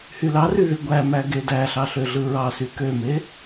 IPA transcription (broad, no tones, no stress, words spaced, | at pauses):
hylɑry ðiɡʷæmæ ɡedæɬɑ ɬøɮɯɹɑsy køme